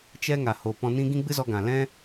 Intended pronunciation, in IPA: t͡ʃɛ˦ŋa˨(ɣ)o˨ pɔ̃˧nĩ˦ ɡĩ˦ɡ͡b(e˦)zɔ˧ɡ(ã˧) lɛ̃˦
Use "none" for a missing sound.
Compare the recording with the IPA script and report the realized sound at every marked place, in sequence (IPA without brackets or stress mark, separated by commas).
h, ɨ˦, ã˨